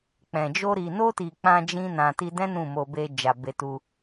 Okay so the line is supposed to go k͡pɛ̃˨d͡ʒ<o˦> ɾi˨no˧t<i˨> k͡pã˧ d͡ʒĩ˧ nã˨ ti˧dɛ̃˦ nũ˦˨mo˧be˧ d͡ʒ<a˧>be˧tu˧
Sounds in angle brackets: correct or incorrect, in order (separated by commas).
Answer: incorrect, correct, incorrect